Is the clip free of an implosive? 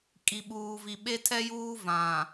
no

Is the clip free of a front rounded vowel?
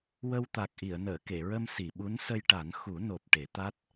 yes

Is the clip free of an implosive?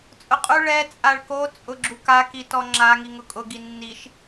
yes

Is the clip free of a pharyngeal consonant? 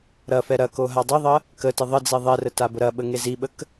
yes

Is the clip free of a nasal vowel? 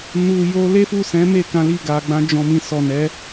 no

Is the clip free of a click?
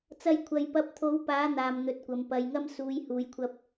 yes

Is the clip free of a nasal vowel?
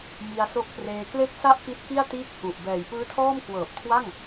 yes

